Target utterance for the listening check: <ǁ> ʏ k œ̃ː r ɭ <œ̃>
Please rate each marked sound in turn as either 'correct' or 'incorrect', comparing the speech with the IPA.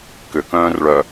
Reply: incorrect: k, incorrect: œ

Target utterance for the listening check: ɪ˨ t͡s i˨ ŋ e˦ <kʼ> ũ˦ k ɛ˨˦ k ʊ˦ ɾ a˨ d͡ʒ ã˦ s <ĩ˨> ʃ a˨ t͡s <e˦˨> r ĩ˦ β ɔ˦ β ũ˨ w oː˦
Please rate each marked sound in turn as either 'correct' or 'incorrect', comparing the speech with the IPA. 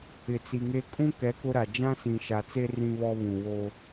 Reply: correct, correct, incorrect: e˦

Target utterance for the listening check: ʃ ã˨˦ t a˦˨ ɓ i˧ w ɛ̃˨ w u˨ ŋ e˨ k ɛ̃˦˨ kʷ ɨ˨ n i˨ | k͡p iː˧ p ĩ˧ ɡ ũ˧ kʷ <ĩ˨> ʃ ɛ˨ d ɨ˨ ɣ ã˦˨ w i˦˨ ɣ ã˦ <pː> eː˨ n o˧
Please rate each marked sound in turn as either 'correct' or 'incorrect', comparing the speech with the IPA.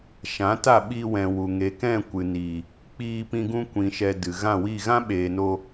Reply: correct, incorrect: ɓ

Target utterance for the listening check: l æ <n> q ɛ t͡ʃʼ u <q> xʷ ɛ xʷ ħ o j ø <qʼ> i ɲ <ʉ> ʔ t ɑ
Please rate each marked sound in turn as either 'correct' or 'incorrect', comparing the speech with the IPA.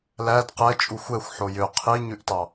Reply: incorrect: d, incorrect: none, incorrect: qʰ, correct

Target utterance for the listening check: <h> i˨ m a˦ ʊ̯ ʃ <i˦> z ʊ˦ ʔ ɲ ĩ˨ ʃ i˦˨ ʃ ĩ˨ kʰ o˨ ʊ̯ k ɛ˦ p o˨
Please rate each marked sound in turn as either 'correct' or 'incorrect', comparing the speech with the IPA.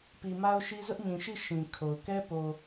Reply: incorrect: p, correct

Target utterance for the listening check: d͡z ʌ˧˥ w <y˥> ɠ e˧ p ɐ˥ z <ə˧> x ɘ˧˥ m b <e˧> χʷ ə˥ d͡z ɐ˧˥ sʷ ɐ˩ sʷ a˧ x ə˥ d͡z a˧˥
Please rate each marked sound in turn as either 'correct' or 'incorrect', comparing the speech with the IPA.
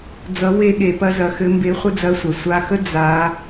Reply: incorrect: e˥, incorrect: ɐ˧, incorrect: e˧˥

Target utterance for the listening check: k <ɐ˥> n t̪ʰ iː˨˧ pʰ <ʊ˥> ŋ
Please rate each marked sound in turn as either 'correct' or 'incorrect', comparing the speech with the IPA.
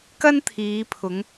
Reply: correct, incorrect: ʊ˨˧

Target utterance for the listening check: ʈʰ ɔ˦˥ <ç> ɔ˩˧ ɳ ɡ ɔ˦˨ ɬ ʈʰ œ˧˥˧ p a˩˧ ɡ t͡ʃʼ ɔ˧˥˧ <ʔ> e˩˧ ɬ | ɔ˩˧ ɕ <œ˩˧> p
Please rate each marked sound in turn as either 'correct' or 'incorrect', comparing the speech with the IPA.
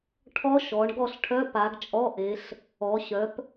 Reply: incorrect: ʃ, correct, correct

